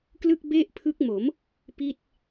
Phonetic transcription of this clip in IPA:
klɯ˥˩k̚be˥˩ʔpʰɯ˦˥k̚mo˩˦m | pi˥˩t̚

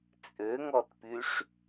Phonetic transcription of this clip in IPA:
t͡sʼøŋɔtpyʂ

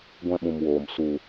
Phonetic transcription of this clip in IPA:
ɡʷɛ̃˧ɓũ˨mwoː˨m su˨

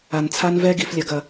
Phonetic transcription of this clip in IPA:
a˨nt͡sʰa˦nvɛ˦ ɡi˨flʲɐ˨ɡɐ˨

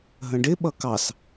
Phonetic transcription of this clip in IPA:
ɦə̃ɖɪ ɓʌkɑs

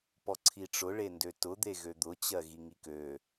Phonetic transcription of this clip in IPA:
pɔǀʰiʈ͡ʂʊ ɭendøtʊ d̪eɣød̪ʊ t͡ɕɜɣiŋikø

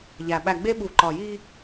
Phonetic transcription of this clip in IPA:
ʎæ˨ ɓæ˨ɡ͡be˦ɓu˨ ǃɒ˨ji˦

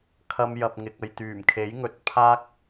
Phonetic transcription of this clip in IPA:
kʰɐ˧m jɐ˨p̚ŋɪ˨k̚ ɐ˨jt̪yː˨˩mkʰe˨˥j ŋɵ˨˥t̚pʰaː˥k̚

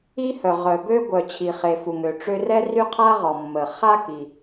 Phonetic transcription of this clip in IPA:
i˥hœ˩ ʁœ˩bø˥ ɡʷœ˩t͡ɕʰi˩χe˩ fu˩ŋø˩ ʈ͡ʂø˥ rɛ˥ry˥qʰa˥ ʁɔ˩mːə˩χa˥ ki˩

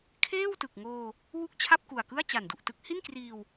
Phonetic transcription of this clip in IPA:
kʰeː˥˩w tɯ˨˩k̚ ŋoː˧ | wu˥˩k̚t͡ɕʰa˥˩p̚ku˨˩a̯kɯ˥˩a̯ t͡ɕa˨˩ndu˨˩ʔtɯ˦˥k̚ hi˥˩nkriː˧w

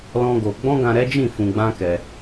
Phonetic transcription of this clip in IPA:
lɔ̃˦ɡo˧ ɡ͡bɔ̃˦ɡã˧ɾɛ˦d͡ʒĩ˦˨ fũ˧ɡ͡bã˦kɛ˧

